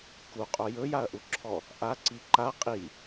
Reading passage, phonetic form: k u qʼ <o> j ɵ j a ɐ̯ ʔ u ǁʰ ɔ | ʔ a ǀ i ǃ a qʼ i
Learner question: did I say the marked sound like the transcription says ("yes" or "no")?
yes